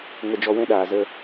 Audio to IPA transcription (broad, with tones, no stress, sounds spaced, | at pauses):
ŋ ə˧ d͡ʒ ɔ˧ w ɛ̃˦ ɗ aː˨ z ə˧